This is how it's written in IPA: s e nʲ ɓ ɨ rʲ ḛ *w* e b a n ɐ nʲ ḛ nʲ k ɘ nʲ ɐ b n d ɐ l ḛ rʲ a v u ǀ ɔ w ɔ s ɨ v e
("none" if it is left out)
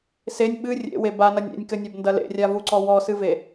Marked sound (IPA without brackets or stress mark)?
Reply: w